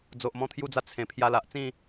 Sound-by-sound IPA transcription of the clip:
d͡zo˨ʔmɔ̃˧t̪ʰju˧d͡za˧ t͡sʰẽ˨˩ pʰja˧la˨ʔt͡sĩ˥˧

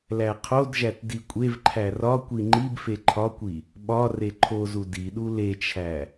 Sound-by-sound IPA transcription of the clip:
læqʰodʒæt dikʷʼevǃʰæ rɒkʷi ŋ͡ǃibfe ǃʰɒkʷi | ɓɒ reǃʰozu diɗu let͡ʃʰæ

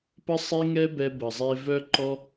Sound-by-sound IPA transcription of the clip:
pə˦sˤe˦ŋɛ˦bɛ˧ bə˨zˤe˧ vœ˦ǃɔ˦

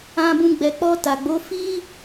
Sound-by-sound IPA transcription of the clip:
ã˨bũ˨ ɡ͡bɛ˨k͡pɔ˧ta˨ɡ͡bo˨˦ fi˦

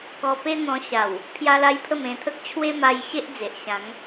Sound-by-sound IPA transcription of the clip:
kɔ˧pe˦n̪ɔ̃˧ ɕa˨˩w | pʰja˦la˦jpʰə˥˧m ẽ˧t̪ʰə˦k̚ t͡ɕʰwe˦ma˧j ɕe˦ʔd͡ze˨ʔ ɕã˨˦ŋ

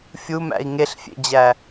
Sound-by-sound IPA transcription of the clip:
fʲumæ̰i̯ ŋeɬfʲḛd͡ʑæ

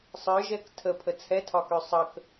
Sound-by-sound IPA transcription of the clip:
sˤə˞ʒɛk tʰəpʰə t͡sʰɛtʰɒkø sˤək

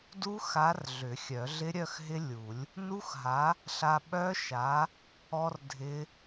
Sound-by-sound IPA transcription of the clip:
du˦˥xa˨˥r ɮʏ˨˩˦xʲœ˨˩˦ɮɪ˦˥ ɾʲœ˥˧xɦɪ˦˥lʲu˨˩˦lʲ | nu˦˥xɦa˨˥ | ɬa˧ɓœ˦˥ʃa˨˥ | ɔ˧r dʱɪ˦˥

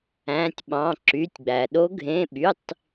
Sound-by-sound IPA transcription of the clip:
æ̃˧˥˧tʲɓɑ̃˧˥˧ ǁy˧˥˧tʲɡ͡bæ˧ ɗo˦˥ɡʱẽ˧˥˧ɓy˧˥˧tˤ

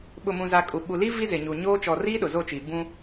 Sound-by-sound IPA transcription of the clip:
ɓʊ˨mũ˨za˨ kʼu˨ɓu˨li˦ vi˦zɪ˨ɲu˨ ɲoː˦ t͡ʃɔ˨riː˦ ɗʊ˨zo˦˨t͡ʃiː˨ bũ˦

